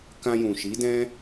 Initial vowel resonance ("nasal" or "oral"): nasal